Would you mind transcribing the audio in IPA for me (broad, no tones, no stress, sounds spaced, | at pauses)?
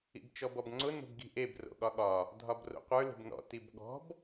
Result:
ḭ b t͡ʃ ɔ b ɔ b ŋ͡ǀ ʊ n o̤ b ɡ i̤ ʔ e b r o̰ ɠ ɒ ɠ ɒ | dʱ ɒ b r o̰ qʷ ə˞ l e̤ b n ɔ̰ t i b ɠ ɔ̤ b